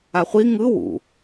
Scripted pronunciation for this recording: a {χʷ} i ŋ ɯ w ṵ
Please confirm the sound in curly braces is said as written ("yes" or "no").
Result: yes